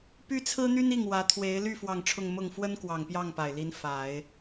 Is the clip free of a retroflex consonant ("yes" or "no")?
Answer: no